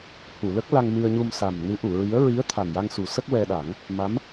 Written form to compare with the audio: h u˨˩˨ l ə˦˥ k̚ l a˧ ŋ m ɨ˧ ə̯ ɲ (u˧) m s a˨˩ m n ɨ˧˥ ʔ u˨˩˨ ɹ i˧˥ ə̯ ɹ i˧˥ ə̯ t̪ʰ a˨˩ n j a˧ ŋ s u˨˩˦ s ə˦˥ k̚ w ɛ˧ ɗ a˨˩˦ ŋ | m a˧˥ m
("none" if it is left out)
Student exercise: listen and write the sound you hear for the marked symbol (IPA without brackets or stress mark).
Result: u˧